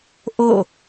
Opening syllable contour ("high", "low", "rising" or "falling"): falling